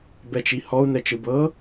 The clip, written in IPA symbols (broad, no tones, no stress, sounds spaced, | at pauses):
b ɛ t͡ʃ i h ɔ u̯ n ɛ t͡ʃ ɯ b ɤ